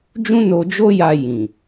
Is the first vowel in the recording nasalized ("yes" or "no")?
yes